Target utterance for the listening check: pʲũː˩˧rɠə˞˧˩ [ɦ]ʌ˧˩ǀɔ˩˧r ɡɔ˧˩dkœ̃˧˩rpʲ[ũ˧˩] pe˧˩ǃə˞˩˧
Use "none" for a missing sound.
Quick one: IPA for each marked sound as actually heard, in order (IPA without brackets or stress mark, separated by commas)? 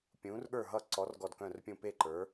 ɦ, ũ˧˩